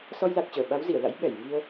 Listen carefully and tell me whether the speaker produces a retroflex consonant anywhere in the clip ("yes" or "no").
no